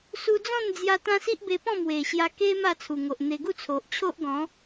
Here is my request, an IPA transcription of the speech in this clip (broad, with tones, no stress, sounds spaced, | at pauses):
s u˧ d͡z ɔ̃˥˧ n d͡z j a˧ t̪ ã˦ s i˦ ʔ b e˧ p ɔ̃˥˧ m w e˨˩ ɕ j a˧ k e˦ m a˥˧ t͡sʰ u˨˩ ŋ o˨ ʔ n̪ e˧ ɡ u˥˧ t͡sʰ o˨ ʔ t͡ɕʰ o˦ ʔ ɡ ɔ̃˨˦